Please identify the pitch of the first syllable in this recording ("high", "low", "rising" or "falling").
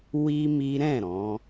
high